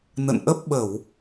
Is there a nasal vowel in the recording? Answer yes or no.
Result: no